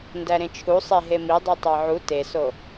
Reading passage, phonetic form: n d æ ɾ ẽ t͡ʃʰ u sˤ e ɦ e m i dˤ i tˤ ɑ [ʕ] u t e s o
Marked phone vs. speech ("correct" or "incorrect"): correct